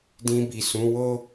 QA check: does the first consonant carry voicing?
yes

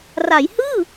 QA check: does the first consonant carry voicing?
yes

